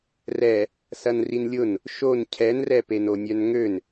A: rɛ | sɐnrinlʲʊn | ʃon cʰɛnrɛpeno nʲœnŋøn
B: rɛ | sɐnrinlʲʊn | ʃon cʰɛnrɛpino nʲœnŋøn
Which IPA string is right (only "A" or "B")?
A